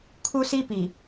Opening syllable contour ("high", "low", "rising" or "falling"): high